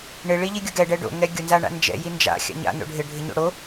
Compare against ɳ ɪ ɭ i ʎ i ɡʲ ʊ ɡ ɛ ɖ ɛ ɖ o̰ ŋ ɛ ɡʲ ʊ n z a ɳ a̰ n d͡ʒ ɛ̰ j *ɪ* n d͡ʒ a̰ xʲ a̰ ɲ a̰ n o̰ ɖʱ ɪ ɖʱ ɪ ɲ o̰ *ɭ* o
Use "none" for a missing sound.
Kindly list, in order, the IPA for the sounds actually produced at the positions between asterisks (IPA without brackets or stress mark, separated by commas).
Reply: i, ɽ